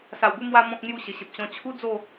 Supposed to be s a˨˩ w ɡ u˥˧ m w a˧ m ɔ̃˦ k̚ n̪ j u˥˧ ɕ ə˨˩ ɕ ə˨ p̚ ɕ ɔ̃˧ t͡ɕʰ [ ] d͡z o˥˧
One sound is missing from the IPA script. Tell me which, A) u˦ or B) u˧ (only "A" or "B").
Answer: A